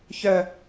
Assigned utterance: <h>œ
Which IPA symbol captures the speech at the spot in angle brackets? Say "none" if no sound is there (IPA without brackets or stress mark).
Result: ç